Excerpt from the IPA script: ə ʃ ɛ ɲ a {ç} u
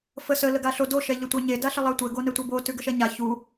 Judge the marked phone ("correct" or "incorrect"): correct